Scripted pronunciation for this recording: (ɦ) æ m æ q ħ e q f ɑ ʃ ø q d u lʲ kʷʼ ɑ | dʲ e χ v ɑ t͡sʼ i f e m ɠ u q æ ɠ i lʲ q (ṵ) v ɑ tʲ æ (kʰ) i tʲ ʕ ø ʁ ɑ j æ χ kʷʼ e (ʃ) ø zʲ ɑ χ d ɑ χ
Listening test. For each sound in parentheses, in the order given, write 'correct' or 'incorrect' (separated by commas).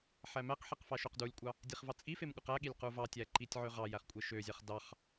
incorrect, incorrect, incorrect, correct